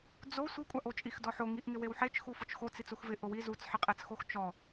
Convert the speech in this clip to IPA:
d͡zo sʷikʷʼaʔot͡ʃʼix dɔħoŋiʔŋɪ wewħet͡ʃ xufʊt͡ʃxot͡s it͡suxvɪ ʔʊwi zut͡sħɪqʼɛt͡sxox t͡ʃɔ

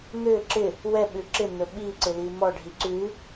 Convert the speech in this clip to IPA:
n̪ʏ ǁɪ | wɛɓʉ ǁɪn̪ɵ ɓiǀɪli mɔɖʱi ǀʉ

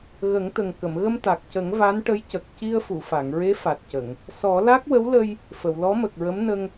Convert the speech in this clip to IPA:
ɣə˨˩˦ŋt̪ə˨˩ŋ kə˨˩˨mɣə˧mt̪a˨˩k̚cə˨˩˦ŋ va˧˥nʈə˧˥jcə˨˩k̚ ci˧ə̯fu˨˩˨fa˨˩˨ŋɹe˧˥ fa˨˩t̚cə˨˩˨ŋ | sɔ˨˩˦la˦˥k̚wə˧˥wlə˧j | fə˨˩˨wlɔ˧˥mə˨˩k̚ɹə˧˥m nə˧ŋ

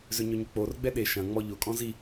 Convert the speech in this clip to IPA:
zøɲøɲʏk͡por ɡ͡bɛɗe ʃɐ̃ ŋ͡mɔʎʊ kʼɔ̃zi

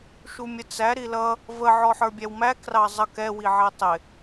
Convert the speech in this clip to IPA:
ʃumʲət͡sæ ɾilʌ | və ʕɔħə˞bʲæwmæ krɑzˤʌk ɛ wiʕɛtˤɪ

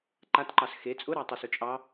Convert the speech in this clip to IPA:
ǃatǃɑs xe t͡sʼʊɾɑtˤyso t͡ʃʼɑ

